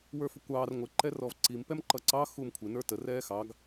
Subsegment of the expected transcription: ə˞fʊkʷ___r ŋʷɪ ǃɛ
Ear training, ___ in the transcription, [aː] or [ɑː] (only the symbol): ɑː